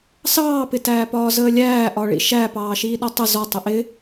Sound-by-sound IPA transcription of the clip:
s ɑː p ɪ t æː p ɒː z əː lʲ æː ʔ ɒ ɭ ḭ ʃ æ p ɑː ʃ iː ɗ ɔ tˤ ə z ɒ tˤ ə ʔ ɪ

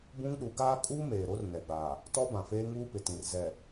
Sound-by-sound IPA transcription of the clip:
b ũ˦ ŋ ɗ u˨˦ ɡ aː˦ kʼ uː˦ m eː˨ ɾ o˦ r n ɛ˨ ɡ͡b a˨ | t ɔ˦ b ã˨ f eː˦ ŋ uː˦ p ɪ˨ t ĩ˨ r z ɛ˨

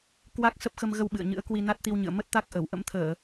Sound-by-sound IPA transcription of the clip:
k w a˦˥ k̚ s ə˦˥ p̚ x ə˧ m ɣ ə˧ w ɓ ɨ̰˧˨ ə̯ ɲ ɨ̰˧˥ ə̯ k w i˧ n a˦˥ t̚ t̪ i˧ w ɲ ɨ̰˧˨ ə̯ m ə˦˥ t̚ t̪ a˦˥ k̚ ʔ ə˧˩ w ʔ ə̰˧˥ m t̪ʰ əː˧˩˨

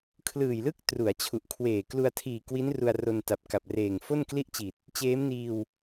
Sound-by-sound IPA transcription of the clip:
kʰ l ɯː˨˩ j l ɯ˥˩ k̚ t r u˩˦ a̯ t͡ɕʰ u˨˩ ʔ kʰ w eː˨˩ k l u˧ a̯ tʰ iː˨˩ k w i˦˥ n r u˧ a̯ r o˧ n t a˨˩ p̚ k a˨˩ p̚ r eː˨˩ ŋ f o˥˩ n k l i˥˩ ʔ t͡ɕ i˨˩ t̚ | t͡ɕ eː˦˥ m n iː˧ w

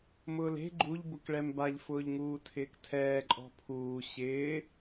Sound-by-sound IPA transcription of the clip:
m ʊː l e̤ ɡ͡ǃ u ʎ b ʊ k ɭ ɛ m b a ʎ f ʊː ʎ ŋ uː tʰ ɪː k tʰ ɛː ǃʼ ɔ̤ pʰ uː ɕ ɪː

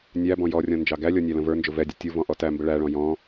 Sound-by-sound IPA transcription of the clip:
nʲ æ b ɔ̃ j ɔ rʲ ɔ̃ n d͡ʒ ɑ ɡ æ lʲ ɔ nʲ æ l ə̃ v ə˞ n d͡ʒ ʊ v ɛ dʲ ʊ tʲ u v ɔ̃ ʔ ɔ t æ m b ə ɭ æ ɭ ɔ̃ j ɔ̃

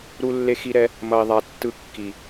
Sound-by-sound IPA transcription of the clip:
ɾ u˧ lː e˧ x i˧ ɾ ɛ˧ | m ʌ˨ i̯ ðˤ a˨ tː ɯ˧ kː i˨

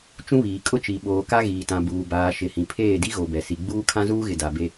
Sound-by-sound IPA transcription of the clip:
t͡ʃ ũ˦ β iː˨ kʼ ʊ˦ t͡ʃ i˨ ɓ oː˨ k a˦ ɣ iː˨ t ã˨ b uː˨ b aː˨ ʃ ɪ˨ h ĩ˨ pʰ eː˦˨ d i˦ ɣ o˨ b ɛ˨ s i˨ ɡ͡b uː˦ kʰ ã˦ z uː˦ ɣ ɪ˨ d a˨ b e˦

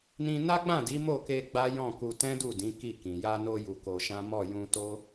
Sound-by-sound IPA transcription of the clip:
n ĩ˧ n a˦ ɡ͡b ã˦˨ d i˨˦ m o˦˨ k e˧ ɡ͡b a˦ j ɔ̃˦˨ k u˧ t ɛ̃˦ d u˦˨ d ĩ˨˦ k i˦˨ k ĩ˨ j a˧ n o˧ j u˧ k o˧ ʃ ã˦ m ɔ˦˨ j ũ˧ t o˦

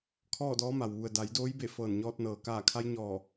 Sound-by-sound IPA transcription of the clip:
kʰ ɔː˥˨ d ɔː˧˥ m a˩ w ʋ u˩ ə̯ d a˩˧ j d oː˧˥ j b e˧˩ f ɤː˧˩ n ɲ ɔː˧ t̚ n ɤː˩ k aː˧˩ kʰ a˧˥ j ɲ ɔː˧˩

